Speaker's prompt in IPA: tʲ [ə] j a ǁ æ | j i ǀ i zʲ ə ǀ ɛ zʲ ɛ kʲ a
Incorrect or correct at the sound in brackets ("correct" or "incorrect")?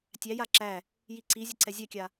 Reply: incorrect